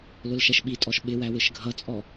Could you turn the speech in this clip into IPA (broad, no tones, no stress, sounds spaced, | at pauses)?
l ʊ l ʃ ɛ ʃ ɓ i tʼ ɔ ʃ ɓ ɪ w æ w ɪ ʃ ɡʱ ʌ t͡sʼ ɔ